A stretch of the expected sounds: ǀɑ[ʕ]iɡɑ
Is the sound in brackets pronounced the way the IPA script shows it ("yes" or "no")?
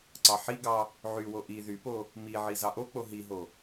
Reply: no